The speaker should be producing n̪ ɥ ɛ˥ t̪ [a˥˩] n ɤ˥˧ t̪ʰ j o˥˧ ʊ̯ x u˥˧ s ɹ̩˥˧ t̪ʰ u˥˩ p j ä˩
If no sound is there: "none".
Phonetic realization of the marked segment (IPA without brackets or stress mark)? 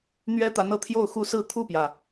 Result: a˧˥